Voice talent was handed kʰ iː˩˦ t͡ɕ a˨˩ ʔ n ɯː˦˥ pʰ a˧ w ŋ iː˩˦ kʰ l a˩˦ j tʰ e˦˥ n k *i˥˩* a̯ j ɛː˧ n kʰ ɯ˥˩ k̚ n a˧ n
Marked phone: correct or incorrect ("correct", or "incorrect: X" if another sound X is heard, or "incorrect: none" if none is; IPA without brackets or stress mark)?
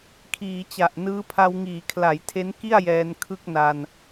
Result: correct